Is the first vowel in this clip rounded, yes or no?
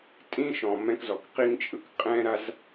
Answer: no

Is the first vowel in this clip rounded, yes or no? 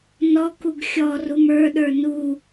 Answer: yes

